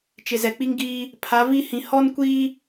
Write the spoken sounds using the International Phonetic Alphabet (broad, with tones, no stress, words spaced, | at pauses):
t͡ʃɪ˨zɛ˨k͡pi˦ŋ ɡiː˦ | pʰa˨˦vi˦hĩ˨ hɔ˦nkʷiː˦